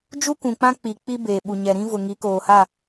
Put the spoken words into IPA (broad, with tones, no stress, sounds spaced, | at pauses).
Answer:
d͡ʒ u˦ k ũ˨ k͡p ã˦ k͡p i˨ k͡p i˦ b eː˨ ɓ u˨ ɲ ɛ˨ ɾ ĩ˦ v ʊ˨ ŋ i˨˦ k oː˨ h a˦˨